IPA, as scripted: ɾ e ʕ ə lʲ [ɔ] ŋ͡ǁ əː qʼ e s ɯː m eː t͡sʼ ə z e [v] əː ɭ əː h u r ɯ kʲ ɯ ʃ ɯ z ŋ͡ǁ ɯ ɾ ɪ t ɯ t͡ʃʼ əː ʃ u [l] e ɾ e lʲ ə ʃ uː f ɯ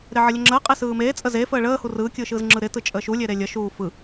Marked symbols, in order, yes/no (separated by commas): no, no, no